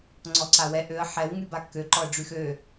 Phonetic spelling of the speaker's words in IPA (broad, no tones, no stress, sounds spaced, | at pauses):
ŋ͡ǀ ɔ ǀ a w ɛ ʔ ø ə̯ ħ ɛ w ŋ y b a kː ø ǃ ɔ ə̯ ɖ͡ʐ y x ø